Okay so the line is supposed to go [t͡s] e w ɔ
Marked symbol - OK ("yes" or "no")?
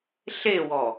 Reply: no